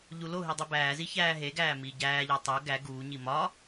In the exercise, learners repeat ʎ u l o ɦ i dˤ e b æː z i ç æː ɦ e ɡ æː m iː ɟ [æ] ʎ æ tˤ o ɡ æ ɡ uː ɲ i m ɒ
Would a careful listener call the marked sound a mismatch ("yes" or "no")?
yes